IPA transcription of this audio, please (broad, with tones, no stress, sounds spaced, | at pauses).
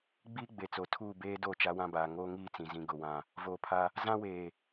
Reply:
ɡ͡b iː˦ ɡ͡b e˨ t͡s o˨ tʰ uː˦˨ b eː˦ d o˦˨ t͡ʃ a˦ w ã˦ b aː˨ ŋ oː˦ ŋ iː˦ t͡s ĩ˨ z ĩ˨ ɡ ʊ˦˨ w ã˦˨ | v oː˨ pʰ a˦ | z ã˦ w eː˨